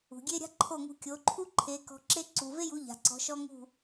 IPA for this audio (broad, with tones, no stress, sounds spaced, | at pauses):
ṳ˩ ɡʲ e˥ ɾʲ a̤˥ ǃʰ o˥˩ ŋ ṳ˧ kʲ o˩˥ ǃʰ u˥ ǃʰ e˩˥ k ɔ̤˧ ǁ e˥ ǀ u˩ v e˥ j u˩˥ ʎ a̤˩ ǀ ɔ̤˩˥ ʃ ɔ˥ ŋ ṳ˥˩